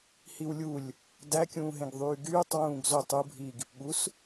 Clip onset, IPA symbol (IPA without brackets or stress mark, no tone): h